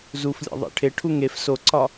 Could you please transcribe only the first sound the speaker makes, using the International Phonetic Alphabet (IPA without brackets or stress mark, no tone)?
z